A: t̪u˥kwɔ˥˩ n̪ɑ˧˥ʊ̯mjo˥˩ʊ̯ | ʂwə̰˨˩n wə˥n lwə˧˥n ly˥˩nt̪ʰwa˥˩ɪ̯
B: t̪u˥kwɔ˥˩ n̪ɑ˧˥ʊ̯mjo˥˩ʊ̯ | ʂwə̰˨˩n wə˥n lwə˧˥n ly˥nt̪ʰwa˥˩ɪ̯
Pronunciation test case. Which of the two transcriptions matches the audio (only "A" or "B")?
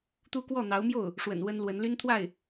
B